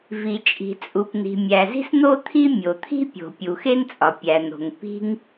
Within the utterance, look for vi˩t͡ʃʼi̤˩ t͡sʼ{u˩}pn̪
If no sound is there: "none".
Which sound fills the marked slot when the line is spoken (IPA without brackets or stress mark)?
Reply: u˩